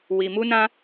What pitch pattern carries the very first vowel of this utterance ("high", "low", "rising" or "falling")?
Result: low